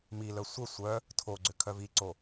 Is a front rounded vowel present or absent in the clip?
present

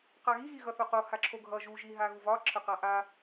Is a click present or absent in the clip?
present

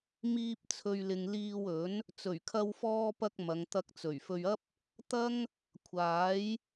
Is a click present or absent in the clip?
absent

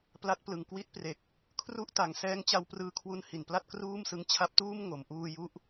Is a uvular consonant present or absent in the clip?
absent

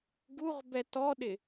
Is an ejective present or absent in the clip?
absent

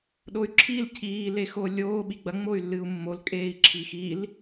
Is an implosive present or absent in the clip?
present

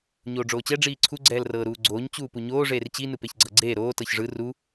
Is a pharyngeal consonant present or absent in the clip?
absent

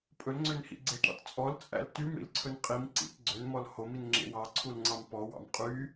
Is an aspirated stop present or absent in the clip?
present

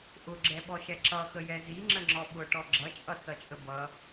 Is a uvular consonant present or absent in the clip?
absent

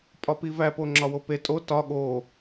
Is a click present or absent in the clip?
present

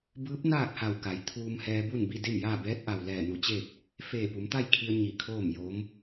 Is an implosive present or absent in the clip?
absent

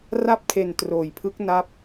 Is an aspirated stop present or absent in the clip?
present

